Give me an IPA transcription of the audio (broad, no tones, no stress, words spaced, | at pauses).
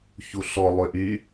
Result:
çuɬɔ lˠøʔy